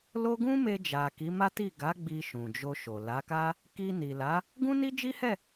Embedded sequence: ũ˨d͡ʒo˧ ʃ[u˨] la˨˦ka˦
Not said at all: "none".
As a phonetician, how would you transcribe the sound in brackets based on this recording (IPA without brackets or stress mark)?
o˨